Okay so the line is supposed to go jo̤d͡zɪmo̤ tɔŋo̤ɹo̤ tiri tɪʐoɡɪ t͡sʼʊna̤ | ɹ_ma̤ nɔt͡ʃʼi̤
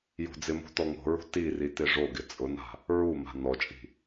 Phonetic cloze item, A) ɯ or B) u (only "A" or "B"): B